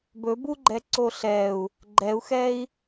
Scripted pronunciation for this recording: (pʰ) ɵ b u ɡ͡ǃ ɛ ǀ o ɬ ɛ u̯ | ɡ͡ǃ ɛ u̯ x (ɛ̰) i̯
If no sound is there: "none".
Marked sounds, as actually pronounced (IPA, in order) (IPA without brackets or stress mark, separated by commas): b, ɛ